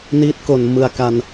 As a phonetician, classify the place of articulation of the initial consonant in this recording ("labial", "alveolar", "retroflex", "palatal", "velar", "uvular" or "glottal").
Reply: alveolar